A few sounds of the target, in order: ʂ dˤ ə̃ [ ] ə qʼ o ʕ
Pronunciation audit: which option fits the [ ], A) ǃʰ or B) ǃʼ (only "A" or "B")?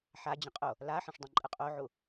B